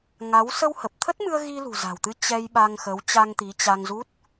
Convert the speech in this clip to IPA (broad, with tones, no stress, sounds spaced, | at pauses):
ŋ a˨˦ w s ə˧ w h ə˨˩ p̚ t̪ʰ ə˦˥ t̚ m ɨ˧ ə̯ ɣ i˧ l ṳ˨˩ z a̤˨˩ w t̪ ɨ˨˦ t͡ɕ ɛ˧ j ɓ a˧ ŋ x ə˨˦ w t͡ɕ a˧ ŋ t̪ i˨˦ t͡ɕ a˧ ŋ z u˦˥ t̚